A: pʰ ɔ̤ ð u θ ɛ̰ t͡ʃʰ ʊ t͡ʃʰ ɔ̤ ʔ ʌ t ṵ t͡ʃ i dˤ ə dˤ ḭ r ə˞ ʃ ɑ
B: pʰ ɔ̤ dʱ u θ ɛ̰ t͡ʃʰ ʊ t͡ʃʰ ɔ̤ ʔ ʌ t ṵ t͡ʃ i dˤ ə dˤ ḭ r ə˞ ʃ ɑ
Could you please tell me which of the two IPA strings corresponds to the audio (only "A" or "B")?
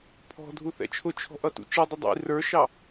B